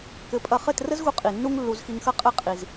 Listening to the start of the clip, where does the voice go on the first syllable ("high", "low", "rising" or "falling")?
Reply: rising